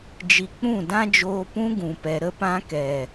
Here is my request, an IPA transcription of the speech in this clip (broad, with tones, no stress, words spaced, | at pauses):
d͡ʒi˨ k͡pũ˦˨dã˦d͡ʒoː˧ pũ˧ ɡũ˨pɛ˨ ɾə˧pã˧ kɛ˨